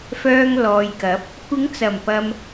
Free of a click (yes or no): yes